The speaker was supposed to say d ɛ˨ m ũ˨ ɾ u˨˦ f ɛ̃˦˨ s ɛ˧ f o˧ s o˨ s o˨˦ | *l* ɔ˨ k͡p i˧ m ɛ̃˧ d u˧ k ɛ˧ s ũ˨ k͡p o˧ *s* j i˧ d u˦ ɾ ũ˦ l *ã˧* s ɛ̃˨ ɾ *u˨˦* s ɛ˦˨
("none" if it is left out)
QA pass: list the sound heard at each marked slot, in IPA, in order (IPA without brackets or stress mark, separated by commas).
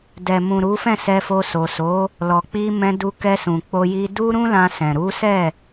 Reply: l, none, ã˧, u˨˦